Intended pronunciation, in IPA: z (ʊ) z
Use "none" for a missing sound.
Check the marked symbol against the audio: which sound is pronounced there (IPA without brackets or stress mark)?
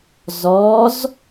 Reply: ɔ